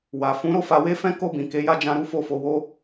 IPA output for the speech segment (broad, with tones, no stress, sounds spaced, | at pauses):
w a˨ f ũ˨˦ ɾ o˦˨ f a˧ w e˦ f ɛ̃˦ k o˦˨ b ĩ˨ k e˨˦ j a˦˨ d͡ʒ ã˧ ɾ u˦ f o˦˨ f o˧ w o˦